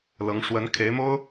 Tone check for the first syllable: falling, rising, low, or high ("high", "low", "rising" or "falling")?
rising